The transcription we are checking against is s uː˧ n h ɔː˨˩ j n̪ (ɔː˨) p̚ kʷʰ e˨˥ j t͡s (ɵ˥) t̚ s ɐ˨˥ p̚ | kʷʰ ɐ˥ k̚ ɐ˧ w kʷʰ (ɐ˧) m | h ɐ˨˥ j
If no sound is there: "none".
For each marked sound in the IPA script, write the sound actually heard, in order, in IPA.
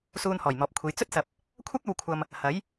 ɔː˨, ɵ˥, ɐ˧

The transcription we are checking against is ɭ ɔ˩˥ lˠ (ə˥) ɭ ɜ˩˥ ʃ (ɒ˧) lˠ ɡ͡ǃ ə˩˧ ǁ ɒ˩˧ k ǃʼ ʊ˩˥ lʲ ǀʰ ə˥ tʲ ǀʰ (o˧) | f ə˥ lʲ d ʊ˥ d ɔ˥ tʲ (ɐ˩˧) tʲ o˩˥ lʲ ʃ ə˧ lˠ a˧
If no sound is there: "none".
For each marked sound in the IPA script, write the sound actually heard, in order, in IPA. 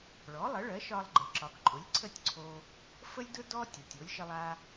ə˩˥, ɒ˧, o˧, a˩˧

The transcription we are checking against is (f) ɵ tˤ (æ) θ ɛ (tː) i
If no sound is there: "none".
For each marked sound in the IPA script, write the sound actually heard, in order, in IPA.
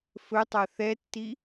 f, a, tː

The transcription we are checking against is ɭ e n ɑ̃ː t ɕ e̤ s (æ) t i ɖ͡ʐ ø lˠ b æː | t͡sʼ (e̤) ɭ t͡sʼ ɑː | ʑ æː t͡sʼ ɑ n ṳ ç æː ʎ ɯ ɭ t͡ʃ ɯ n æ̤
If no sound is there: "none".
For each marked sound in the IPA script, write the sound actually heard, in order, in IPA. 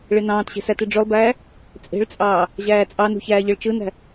æ, e̤

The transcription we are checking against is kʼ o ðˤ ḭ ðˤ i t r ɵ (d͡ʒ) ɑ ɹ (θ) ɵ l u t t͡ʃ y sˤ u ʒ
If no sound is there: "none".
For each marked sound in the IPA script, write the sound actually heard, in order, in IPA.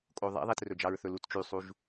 d͡ʒ, θ

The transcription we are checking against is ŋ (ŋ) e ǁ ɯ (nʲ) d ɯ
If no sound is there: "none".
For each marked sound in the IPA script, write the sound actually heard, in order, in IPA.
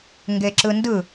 ɡ, n

